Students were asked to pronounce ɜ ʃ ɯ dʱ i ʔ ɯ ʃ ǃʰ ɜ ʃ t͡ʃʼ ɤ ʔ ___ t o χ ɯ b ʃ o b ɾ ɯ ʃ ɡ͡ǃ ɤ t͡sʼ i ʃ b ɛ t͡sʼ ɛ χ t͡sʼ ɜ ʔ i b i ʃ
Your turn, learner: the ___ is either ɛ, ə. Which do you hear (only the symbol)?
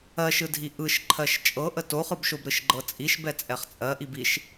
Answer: ə